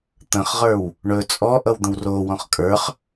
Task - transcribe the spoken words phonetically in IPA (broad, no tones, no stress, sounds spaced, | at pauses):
t̪ ə̃ χ ʁ ə˞ w | ɳ ɵ t͡sʼ ɔ ʔ ʌ w d̪ ə̃ w r o w ɔ̃ χ kʼ ə˞ χ